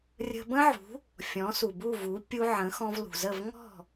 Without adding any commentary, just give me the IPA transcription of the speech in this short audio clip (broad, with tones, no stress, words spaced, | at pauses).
rʲə̤˧bə̃˥ʕṳ˩˥ | fʲɔ̃˩˥su˩bu˥˩vu˩˥ pʲu˧ʕə̃˩˥ xɔ̃˧vlṳ˩zə˥˩v ŋɔ̤˥˩